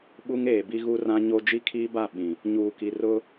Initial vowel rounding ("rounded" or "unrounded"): rounded